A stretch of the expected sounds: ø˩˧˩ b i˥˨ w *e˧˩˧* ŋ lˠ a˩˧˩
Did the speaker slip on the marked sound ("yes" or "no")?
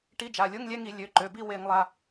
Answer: no